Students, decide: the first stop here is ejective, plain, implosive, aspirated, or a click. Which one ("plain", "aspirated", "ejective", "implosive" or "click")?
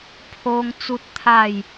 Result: aspirated